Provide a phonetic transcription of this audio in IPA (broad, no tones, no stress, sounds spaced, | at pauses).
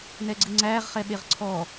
n ɛ ɡ͡ǀ ɨ ŋ͡ǀ æː ʁ χ ɛ ɓ e ʁ ǀʰ ɔ